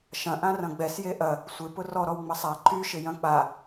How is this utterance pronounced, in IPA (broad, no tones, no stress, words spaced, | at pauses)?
ʃɐ̃ ʔãrɐ̃ɡ͡bɛs jeʔɐ | sʷɪ pʊrɔɾɔw ŋ͡mɐsˤa ǃy ʃɪjɐ̃k͡pa